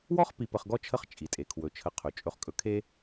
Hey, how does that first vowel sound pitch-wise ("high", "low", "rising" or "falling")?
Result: high